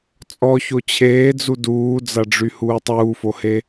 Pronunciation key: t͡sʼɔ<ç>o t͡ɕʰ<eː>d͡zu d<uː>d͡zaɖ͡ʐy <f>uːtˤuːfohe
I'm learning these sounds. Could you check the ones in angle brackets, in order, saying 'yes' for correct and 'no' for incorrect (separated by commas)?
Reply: yes, yes, yes, no